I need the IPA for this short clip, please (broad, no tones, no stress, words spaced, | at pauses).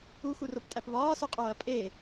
uxuroptʼæp βɒːsoqʼoːɐ̯ pʼe